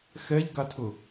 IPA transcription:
xɛʎɡatʰʊ

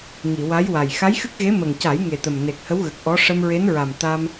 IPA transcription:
ŋi˨˩˨wa˧˥jwa˨˩j xa˧˥jxɨ˦˥k̚ɣe˧˥ mə˨˩ŋca˨˩˦j ŋe˨˩t̪ə˨˩m ne˨˩k̚hə˧˥w ɣə˨˩k̚ʔɔ˧˥ ʂə˧mɹe˧˥nɹa˨˩m t̪a˧m

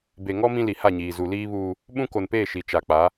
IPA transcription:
be˨ŋɔ˦ mĩ˦li˨ha˦˨ɲiː˨ zu˨liː˦βuː˦ | ɓũ˦ko˨npeː˦˨ ʃi˨t͡ʃa˨k͡pa˨˦

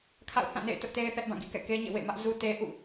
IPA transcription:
kʰa̰˦˨ʊ̯θã˦˨ nḛ˦˨ɪ̯tʊ˦ʔte˦ɪ̯ θɛ˦ʔbã˦˨ɡḭ˦˨kɛ̰˦˨ ke˦ɲḛ˦˨wḛ˦˨mä˦ʔ zu˦ te˦ ʔṵ˦˨

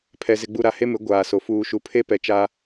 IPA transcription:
pʰɛ˨ zɪ˨ɡ͡bu˨ ɾa˨ he˦mɪ˨˦ ɡʷaː˨so˨ fuː˨ʃu˨ pʰe˦pɛ˨t͡ʃa˦

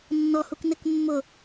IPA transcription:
nːɔhuk nɪkmːʊ

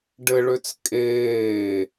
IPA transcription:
ɖɘɭøt͡s kʼeː

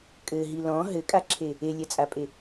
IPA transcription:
kʼɘɦi lɔ̃ ɦɘkʼaǁʰe | elʲɛt͡sʼapʼe

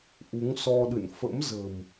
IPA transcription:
ʔu˨˦ŋsɔ˧ɗɨ̰˧˨n fə̰˧˥mzə̤˨˩m

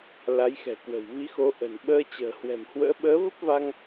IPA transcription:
la˨˦jxɛ̤˨˩kwə̤˨˩w vi˨˦xo˨˦ ʔə̤˨˩n ɓəː˧t͡ɕə̤ː˨˩ hwɛ̤˨˩mhwə̰ː˧˥ ɓəː˨˦və˦˥p̚ va˧ŋ

